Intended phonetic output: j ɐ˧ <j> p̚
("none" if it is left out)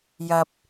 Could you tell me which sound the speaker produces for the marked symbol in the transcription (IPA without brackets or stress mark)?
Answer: none